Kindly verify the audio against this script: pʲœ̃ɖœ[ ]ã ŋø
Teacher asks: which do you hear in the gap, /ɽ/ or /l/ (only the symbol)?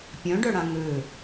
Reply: ɽ